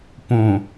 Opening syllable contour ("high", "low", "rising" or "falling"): low